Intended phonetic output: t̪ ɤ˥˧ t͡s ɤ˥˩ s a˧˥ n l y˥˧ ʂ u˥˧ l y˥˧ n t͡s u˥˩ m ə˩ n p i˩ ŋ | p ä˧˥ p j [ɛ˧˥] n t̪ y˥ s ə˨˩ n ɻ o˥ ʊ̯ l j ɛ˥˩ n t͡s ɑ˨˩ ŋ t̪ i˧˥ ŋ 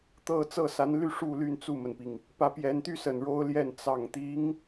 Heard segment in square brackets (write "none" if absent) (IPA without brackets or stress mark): ɛ˧˥